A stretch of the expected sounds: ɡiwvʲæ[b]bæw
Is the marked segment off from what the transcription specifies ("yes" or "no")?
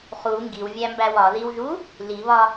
yes